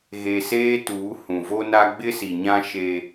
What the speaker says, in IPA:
ɣ e˨ s eː˦ t uː˨˦ h ũ˨ v o˦ n a˦ ɡ͡b ɪ˦ s i˨ ɲ ã˦ ʃ e˦

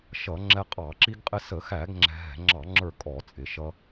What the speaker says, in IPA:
ʃ ʌ˧˩˧ ŋ͡ǁ ɛ˧ qʼ ɑ˧˩˧ ǁ i˧ ɡ qʼ ɪ˧ s ə˧˩˧ x æ˧˩˧ ɡ ŋ͡ǁ ɛ̤˧ ɦ ɛ̤˧˩˧ ŋ͡ǁ ɑ˧˩˧ ŋ͡ǁ ə˞˧˩ kʼ ɔ˧˩˧ t͡sʼ ɪ˧˩˧ ʃ ʌ˧

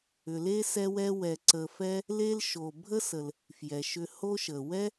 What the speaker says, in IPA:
ʏ˨ l e˥ s ɛ˦ w ɛ˦ w ɛ˨ ǀ ə˨ f ɛ˦ | l e˦ l ʃ o˨ bʱ ə˥ s ə˨ l | f j ɛ˩ ʃ ʏ˨ h o˥ ʃ ə˩ w ɛ˥

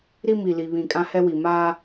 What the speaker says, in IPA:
ɾ i˦ m i˨ l i˨ β ĩ˨ kʼ ã˦ h ɛ˦ w i˨ m aː˦

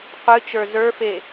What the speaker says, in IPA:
qʷ ɨ t͡ʃ ə˞ z ə˞ f e

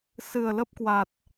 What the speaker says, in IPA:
s ɨ˨˩ ə̯ l ə˦˥ p̚ k w a˨˩ t̚

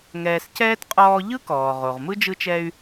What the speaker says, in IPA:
ŋ ɛː˨ s c ɛː˥ t qʼ ɔː˦ ʎ ɯ˥ k ɔː˩ ʁ o˩ ʁ m ɯ˥ d͡ʒ ɯ˦ t͡ʃ ɛ˦ y̯

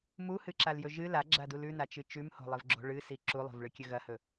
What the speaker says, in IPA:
m u h ɨ ǁ a l j ɵ ʒ ɨ l a ɡ͡ǁ a d u l ʉ n a t͡ʃ ɨ t͡ʃ ʉ m h o̤ lˠ ɨ v ɡ͡ǁ o̤ ɭ ɨ s i ǁ u lˠ o̤ v ɭ ɨ kʲ ɵ ɣ ɐ h ɵ

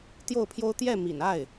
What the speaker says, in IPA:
t̪ j o˥˩ ʊ̯ pʰ j o˥ ʊ̯ t̪ j ɛ˥˩ m ḭ˨˩ n a˥˩ ɪ̯

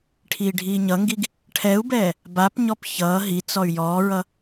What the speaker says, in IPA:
ʈʰ iː ɖʱ iː ɲ ʌ ŋ ɡ i ɡ | ʈʰ ɛ u̯ b ɛː | b a p ɲ ɔ p ç ʌː ɦ i t͡s ɔ y̯ j ɔː ɹ ʌ

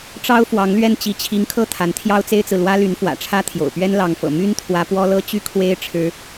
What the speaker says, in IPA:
ʈ͡ʂ ɑ˥ ʊ̯ f w ɑ˧˥ ŋ l ɥ ɛ˥˩ n t͡ɕ i˧˥ t͡ɕʰ i˧˥ ŋ kʰ ɤ˥˩ t̪ʰ a˧˥ n t̪ʰ j ɑ˥ ʊ̯ t͡s e˥ ɪ̯ t͡s ɹ̩˨ l w ä˥ l y˧˥ n f w ä̰˨˩ ʈ͡ʂʰ ä˥ t̪ʰ j o̰˨˩ ʊ̯ p ɥ ɛ˥ n l ɑ˧˥ ŋ f ɤ̰˨˩ m y˥ n t̪ʰ w ä˧˥ p w ɔ˥ l ɤ˥ t͡ɕ y˥ kʰ w e˥ ɪ̯ ʈ͡ʂʰ ɻ̩˥

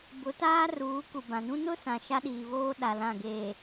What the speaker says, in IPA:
b ʊ˨˦ t aː˦ r uː˨˦ k u˨ b ã˨ n ũ˦ n ʊ˦ s ã˨ ʃ a˦ ɗ iː˨ β oː˦ ɗ a˨ l ã˦˨ ɡ eː˨

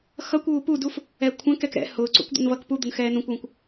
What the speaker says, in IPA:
x ʌ kʷ uː p u d u f | ɛ kʷʰ ɛ̃ k ɛ k ɾ ɛ̰ h ʊː ǀ ṵ kʷ d̪ ṵ n v ʌ k p u d̪ ʊ n x ɛː n ũ kʷ w ũ kʷ

